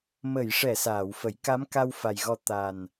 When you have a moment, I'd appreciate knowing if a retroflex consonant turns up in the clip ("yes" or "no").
yes